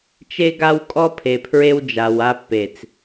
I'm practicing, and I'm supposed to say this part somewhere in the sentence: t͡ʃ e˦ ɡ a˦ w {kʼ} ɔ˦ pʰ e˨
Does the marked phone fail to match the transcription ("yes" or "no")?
no